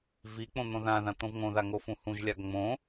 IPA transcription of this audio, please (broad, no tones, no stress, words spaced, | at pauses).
vik͡põ n̪õðãðã t̪õvŋõða ŋofũhũʒlʲaɡ ŋ͡mõ